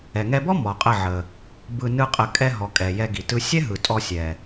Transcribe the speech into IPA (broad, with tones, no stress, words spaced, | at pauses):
ɛ˨ŋɛ˧bɔ˦ mɔ˨qʼə˦˨ʕə˨ | bɯ˧ nɯ˦qʼə˧ kʼɛ˧ɦɔ˨ kʼɛ˨jɛ˧ ɡi˨tɯ˧ sʲɛ˦ɦɯ˨ tʼɔ˧sʲɛ˨